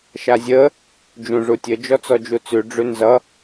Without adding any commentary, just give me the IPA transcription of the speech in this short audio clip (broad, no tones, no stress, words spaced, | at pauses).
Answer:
ʃazʲə | d͡ʒũʐutʲə d͡ʒɔt͡sɔd͡ʒut͡sʉ ɖ͡ʐʉnzʌ